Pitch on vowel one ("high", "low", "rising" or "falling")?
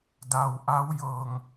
low